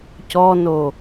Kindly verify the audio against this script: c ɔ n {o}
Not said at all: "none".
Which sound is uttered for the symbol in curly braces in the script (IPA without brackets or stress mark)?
o